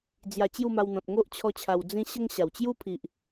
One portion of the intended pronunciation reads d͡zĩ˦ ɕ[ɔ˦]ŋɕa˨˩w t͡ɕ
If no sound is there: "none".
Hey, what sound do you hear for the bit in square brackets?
ə˦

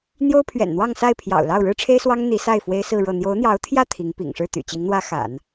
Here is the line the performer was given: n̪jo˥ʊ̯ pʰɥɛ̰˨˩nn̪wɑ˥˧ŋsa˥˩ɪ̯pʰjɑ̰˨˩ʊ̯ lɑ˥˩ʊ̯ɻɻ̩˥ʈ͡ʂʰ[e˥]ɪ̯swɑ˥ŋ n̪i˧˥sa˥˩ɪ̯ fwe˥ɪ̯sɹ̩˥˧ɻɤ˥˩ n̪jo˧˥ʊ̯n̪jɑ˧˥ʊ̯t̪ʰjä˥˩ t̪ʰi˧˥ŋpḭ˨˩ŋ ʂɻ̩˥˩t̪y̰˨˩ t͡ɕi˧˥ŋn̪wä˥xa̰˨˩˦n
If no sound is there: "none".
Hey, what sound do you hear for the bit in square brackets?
e˥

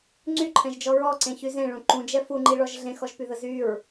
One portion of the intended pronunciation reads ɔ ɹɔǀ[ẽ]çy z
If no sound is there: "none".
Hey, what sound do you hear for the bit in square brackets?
ẽ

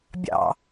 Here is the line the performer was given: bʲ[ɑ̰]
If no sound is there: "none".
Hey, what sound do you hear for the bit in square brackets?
ɑ̰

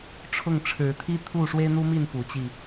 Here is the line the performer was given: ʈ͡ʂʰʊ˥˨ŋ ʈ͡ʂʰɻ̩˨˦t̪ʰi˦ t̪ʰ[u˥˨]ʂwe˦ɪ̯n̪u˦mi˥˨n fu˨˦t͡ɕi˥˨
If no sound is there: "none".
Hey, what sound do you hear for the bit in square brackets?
u˥˨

